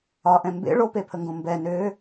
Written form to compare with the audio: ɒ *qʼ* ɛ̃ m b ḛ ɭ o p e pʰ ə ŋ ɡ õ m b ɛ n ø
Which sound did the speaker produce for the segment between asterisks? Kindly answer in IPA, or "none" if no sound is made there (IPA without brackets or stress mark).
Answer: ʔ